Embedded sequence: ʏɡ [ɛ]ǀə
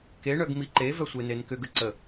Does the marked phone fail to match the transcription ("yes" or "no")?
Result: yes